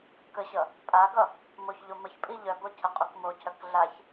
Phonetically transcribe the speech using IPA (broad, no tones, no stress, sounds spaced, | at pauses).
k ə ɕ ʌ | pʼ a ɡ ʌ | m o ç ʎ o m ə ç pʼ i ʎ œ b o cʰ ə qʼ u k m o cʰ œ k ɮ a ç